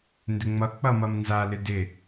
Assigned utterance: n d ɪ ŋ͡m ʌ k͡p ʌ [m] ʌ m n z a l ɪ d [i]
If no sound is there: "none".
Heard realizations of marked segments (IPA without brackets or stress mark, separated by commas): m, ɪ